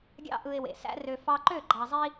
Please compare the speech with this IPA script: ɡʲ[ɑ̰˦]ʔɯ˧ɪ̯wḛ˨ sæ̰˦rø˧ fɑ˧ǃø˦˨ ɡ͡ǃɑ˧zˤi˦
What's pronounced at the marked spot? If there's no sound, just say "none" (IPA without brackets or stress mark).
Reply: ɑ̰˦